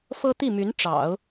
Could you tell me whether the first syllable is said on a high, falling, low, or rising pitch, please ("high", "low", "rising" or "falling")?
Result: high